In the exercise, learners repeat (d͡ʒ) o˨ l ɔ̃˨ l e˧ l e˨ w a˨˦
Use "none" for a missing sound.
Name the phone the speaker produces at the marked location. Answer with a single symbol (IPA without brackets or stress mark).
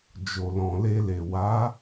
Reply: d͡ʒ